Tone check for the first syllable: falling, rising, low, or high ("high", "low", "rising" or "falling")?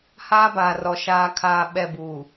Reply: high